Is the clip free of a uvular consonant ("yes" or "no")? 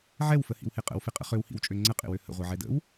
no